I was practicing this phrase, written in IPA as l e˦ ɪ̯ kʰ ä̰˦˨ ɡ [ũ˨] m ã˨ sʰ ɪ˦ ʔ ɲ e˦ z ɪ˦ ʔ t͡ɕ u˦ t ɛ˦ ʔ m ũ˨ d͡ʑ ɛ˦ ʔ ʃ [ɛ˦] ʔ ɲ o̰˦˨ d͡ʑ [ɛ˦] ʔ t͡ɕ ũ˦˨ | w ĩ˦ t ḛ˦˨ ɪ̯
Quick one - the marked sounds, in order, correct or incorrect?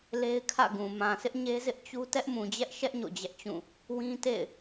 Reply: correct, correct, correct

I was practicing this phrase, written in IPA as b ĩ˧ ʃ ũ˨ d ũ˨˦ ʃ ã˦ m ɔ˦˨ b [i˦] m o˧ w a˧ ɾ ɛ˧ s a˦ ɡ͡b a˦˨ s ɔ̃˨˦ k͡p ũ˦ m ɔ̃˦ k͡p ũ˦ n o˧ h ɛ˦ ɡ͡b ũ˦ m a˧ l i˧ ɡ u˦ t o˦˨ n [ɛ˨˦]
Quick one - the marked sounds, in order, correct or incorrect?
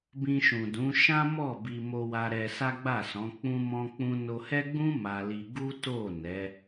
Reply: incorrect: i˧, correct

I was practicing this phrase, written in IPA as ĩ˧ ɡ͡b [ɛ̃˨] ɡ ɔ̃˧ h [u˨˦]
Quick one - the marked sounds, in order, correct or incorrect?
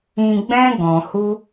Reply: incorrect: ɛ̃˦, incorrect: u˦

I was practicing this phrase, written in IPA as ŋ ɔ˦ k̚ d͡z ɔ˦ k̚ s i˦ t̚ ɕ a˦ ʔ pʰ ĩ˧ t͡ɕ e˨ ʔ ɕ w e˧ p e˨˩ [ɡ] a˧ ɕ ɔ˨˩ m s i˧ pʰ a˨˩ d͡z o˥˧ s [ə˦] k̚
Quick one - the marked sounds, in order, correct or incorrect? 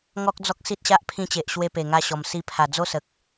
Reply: incorrect: ŋ, incorrect: ə˨

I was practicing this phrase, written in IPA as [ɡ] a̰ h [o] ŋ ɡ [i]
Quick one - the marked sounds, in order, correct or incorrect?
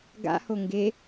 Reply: correct, correct, incorrect: e

